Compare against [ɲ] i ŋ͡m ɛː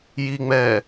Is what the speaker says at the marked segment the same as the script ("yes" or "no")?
no